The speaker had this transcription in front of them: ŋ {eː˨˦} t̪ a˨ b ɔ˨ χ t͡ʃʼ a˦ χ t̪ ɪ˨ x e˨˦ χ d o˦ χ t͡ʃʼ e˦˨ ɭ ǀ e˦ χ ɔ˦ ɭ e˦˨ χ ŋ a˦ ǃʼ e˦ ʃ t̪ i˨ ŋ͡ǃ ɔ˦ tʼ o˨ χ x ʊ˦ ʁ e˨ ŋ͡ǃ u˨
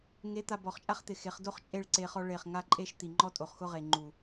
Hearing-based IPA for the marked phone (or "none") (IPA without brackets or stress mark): e˨˦